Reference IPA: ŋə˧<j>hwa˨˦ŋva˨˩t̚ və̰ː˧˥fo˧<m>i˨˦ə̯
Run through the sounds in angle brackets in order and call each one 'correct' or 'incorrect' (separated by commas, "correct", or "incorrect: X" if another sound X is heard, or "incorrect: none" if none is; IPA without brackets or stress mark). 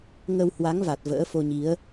incorrect: w, incorrect: ɲ